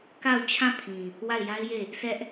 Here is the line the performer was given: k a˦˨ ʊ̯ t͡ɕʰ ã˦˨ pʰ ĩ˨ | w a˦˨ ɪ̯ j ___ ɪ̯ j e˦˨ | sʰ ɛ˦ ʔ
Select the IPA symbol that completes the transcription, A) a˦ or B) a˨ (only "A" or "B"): A